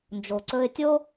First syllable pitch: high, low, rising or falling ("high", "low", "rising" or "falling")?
low